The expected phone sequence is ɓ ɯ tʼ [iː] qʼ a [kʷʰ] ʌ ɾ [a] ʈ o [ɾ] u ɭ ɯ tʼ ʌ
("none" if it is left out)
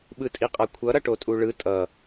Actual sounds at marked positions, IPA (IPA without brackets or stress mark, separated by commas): i, kʷʰ, ʌ, tʼ